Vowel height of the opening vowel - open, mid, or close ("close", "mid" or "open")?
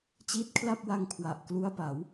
close